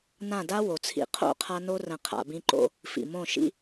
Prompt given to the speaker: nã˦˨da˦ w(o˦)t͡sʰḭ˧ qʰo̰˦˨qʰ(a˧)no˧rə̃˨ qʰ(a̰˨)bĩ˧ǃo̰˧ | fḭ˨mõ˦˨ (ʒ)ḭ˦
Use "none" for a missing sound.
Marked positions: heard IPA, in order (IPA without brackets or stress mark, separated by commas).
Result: o˨, a˧, a̰˨, ʃ